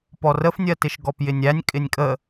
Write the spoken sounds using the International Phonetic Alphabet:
p ɔ r ə f nʲ ɜ t ɪ ʃ ɡ ɔ p j ɪ nʲ æ nʲ kʼ ɪ nʲ kʼ ə

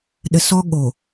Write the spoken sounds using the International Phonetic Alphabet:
ɗ ə˨ s ɔ˦ ɠ o˨

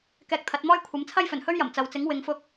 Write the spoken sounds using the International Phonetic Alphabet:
k ɛː˧ k̚ t̪ʰ ɐ˨˥ t̚ m ɔː˥ j kʷʰ ɐ˨˥ m t͡sʰ ɐ˥ j f ɵ˨˩ n h ɵ˥ ɥ j ɐ˨˩ m t͡s ɐ˨ w t͡s ɪ˨˥ ŋ w ɪ˨˧ ŋ f ʊ˧ k̚

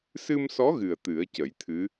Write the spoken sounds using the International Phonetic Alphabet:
s ɨ˧ m s ɔ˧˥ ɣ ɨ˨˩ ə̯ t̪ ɨ˨˩˦ ə̯ c ə˨˩˦ j t̪ʰ ɨ˧˥

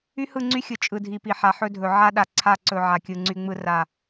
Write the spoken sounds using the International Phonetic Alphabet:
y˦ h ɯ˦˨ ŋ͡ǀ y˦ xʲ ɯ˨ t͡ʃʼ ɯ˨ dʱ i˨ p i˨ ħ a˨ ħ ɵ˦ dʱ ɵ˨ ʕ a˦ ɗ a˨ ǀʰ a˦˨ ǀ ɵ˨ ʕ a˨ kʲ ɯ˨ ŋ͡ǀ y˦ ŋ͡m ɯ˦ r a˦˨

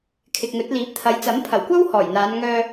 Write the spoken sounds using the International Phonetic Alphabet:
kʰ ɪ˨ k̚ ŋ ɵ˨˥ t̚ l iː˨˥ p̚ t̪ʰ ɐ˨˥ j t͡s ɐ˨˥ m pʰ ɐ˨˩ w kʷ ɐ˥ w h ɔː˨˩ j n̪ aː˨˧ n ŋ œː˧

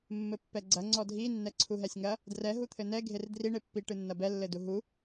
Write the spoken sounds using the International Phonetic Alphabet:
mː ɘ pː ɛ ɡ͡ǀ ɐ ŋ͡ǀ ɔ dʱ i nː ɛ ǀʰ u ɦ ɛ sʲ ŋ ɐ | d r ɛ ɦ u t̪ʰ ɘ n ɛ ɡʱ e r d r i ɳ e pː i ʈ ɨ nː ɐ b ɛ lː ɘ d u ɦ u

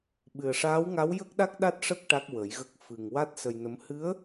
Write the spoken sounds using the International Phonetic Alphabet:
ɓ ɨ˨˩ ə̯ ʂ aː˧˥ w ŋ a˧˥ w j ə˦˥ k̚ ɗ a˦˥ k̚ ɗ a˦˥ t̚ ʂ ə˦˥ k̚ ʈ a˦˥ k̚ w ə˨˩˦ j ɣ ə˦˥ k̚ f ɨ˨˩ ŋ w a˦˥ t̚ s ə˧ j n ə˧˥ m h ɨ˧˥ ə̯

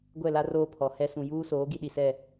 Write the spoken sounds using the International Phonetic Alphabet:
ɡʷ ɛ˦˨ l a˦ r oː˦ pʰ ɔ˨ h ɛ˦ s ũ˨ j uː˦ s oː˨˦ ɡ i˦ ɗ i˨ s ɛ˦˨

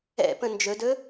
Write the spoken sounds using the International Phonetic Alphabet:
ɛ̰ p ə̃ n d͡ʒ ɵ d ɵ

